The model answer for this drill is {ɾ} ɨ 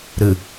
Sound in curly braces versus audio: correct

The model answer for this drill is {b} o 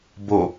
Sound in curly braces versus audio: correct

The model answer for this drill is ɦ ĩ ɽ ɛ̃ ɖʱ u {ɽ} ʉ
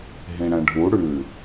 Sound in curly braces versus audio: correct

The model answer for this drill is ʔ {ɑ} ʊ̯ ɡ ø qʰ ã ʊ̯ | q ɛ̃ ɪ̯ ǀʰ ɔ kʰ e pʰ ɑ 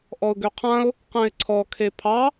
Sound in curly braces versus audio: incorrect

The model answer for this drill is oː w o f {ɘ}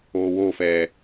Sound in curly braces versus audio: incorrect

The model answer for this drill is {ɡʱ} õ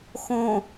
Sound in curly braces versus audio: incorrect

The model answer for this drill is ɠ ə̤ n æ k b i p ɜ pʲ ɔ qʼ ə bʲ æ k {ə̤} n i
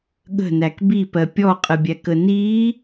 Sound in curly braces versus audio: incorrect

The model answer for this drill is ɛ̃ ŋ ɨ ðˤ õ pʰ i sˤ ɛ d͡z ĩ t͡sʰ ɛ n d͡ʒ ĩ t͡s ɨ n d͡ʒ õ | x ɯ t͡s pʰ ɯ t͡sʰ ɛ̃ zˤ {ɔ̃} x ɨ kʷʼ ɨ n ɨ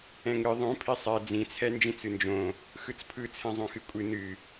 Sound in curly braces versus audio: incorrect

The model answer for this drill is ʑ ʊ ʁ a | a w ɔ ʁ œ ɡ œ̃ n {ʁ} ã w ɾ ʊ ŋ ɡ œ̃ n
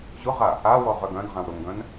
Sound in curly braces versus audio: correct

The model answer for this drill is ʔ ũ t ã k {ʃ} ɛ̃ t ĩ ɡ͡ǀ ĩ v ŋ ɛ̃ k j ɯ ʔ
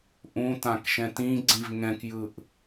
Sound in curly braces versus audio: correct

